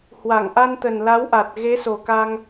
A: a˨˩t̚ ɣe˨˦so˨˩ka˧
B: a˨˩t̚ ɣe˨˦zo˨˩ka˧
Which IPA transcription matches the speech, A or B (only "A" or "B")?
A